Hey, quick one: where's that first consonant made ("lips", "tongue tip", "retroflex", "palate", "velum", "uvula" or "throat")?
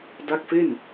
tongue tip